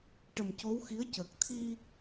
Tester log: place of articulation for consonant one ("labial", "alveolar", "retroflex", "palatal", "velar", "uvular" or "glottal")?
retroflex